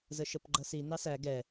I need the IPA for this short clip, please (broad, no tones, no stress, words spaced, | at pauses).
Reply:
zəʃəpɡ͡ǃʌsi nɑsæ ɡɛ